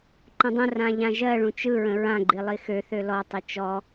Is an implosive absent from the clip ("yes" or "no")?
yes